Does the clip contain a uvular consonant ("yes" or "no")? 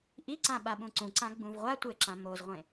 yes